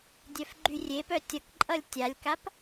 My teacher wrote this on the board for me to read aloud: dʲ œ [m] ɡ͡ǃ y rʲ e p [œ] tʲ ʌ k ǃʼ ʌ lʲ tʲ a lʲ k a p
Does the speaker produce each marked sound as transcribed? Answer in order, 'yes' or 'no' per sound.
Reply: no, yes

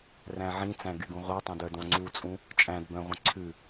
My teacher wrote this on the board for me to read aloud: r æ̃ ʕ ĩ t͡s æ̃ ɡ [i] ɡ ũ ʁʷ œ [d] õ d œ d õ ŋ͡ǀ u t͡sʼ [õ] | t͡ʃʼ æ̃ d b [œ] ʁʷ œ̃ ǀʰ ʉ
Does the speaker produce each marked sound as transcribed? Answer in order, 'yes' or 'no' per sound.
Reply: no, no, no, no

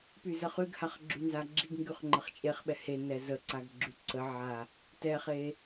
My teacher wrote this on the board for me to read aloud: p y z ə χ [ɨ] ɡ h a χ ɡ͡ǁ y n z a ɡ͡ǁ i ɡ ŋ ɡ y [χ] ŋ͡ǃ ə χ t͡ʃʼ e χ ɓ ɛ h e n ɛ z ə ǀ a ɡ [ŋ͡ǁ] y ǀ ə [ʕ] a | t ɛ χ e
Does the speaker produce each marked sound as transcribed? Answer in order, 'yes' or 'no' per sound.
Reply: no, yes, no, yes

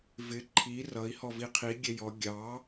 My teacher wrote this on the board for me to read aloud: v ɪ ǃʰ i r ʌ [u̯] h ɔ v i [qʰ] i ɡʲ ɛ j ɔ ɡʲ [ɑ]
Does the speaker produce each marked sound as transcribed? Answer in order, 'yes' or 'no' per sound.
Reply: no, yes, yes

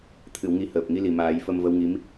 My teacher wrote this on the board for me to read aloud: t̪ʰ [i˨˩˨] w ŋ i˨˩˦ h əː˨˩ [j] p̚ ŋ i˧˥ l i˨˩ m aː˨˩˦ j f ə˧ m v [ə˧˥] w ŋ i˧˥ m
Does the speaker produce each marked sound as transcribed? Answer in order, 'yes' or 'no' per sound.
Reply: no, no, yes

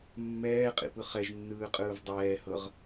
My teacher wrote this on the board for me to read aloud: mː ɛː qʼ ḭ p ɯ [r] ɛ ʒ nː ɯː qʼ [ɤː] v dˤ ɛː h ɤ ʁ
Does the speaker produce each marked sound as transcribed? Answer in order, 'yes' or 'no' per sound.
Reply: no, no

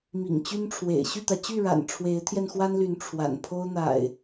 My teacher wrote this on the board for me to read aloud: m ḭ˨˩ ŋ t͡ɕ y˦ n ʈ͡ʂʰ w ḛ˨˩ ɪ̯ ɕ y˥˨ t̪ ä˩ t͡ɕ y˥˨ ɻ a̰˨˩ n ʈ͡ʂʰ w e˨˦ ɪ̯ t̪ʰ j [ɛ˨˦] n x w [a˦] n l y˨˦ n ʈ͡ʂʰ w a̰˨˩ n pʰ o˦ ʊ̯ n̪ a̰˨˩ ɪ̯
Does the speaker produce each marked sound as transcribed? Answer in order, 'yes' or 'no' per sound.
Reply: no, yes

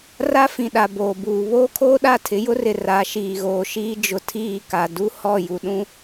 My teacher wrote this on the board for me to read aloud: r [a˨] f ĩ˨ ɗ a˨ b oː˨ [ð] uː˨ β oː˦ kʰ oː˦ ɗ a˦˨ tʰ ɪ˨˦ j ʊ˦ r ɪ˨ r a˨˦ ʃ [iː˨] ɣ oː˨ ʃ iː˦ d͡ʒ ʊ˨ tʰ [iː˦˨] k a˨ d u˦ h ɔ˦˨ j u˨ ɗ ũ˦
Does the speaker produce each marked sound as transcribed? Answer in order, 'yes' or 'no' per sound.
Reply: no, no, yes, yes

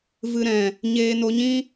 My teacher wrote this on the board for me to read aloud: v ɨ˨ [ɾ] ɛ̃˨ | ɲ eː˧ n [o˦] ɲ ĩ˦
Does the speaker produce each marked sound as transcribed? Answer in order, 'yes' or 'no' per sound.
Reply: yes, no

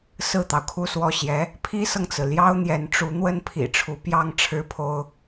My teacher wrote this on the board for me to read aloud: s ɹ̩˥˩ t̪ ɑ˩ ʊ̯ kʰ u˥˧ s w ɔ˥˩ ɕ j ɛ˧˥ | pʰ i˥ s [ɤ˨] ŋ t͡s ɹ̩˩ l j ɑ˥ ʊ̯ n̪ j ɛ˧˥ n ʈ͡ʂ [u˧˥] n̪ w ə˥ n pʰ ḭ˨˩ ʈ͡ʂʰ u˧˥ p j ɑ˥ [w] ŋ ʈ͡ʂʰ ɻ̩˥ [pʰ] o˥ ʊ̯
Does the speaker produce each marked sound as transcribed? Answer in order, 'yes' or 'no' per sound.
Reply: yes, yes, no, yes

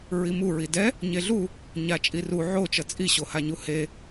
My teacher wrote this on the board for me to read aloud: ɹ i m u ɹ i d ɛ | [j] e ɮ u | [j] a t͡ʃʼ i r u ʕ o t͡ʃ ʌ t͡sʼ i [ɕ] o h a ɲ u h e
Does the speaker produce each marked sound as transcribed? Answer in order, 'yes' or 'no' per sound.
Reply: no, no, yes

